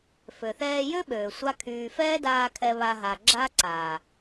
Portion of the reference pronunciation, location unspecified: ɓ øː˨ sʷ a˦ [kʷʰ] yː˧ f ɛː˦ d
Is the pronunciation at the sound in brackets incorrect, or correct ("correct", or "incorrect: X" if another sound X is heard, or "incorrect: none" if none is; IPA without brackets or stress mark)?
incorrect: kʰ